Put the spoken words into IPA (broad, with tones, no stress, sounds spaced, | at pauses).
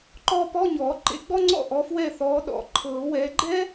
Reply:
ǃ ɔː˥ p ɔ˧˥˧ ɲ ɔː˨˩˦ ǃ ḛ˨˥ ɡ͡b ɔ˥ ŋ͡ǀ ɔ̰˥˨ ʔ ɔ˨˥ f w ɛ˥˨ θ ɔː˨˥ ɗ ɔ̰˨˥ ǃʰ ɤː˨˩˦ w ɛː˨˥ ɡ͡ǃ ɛ˥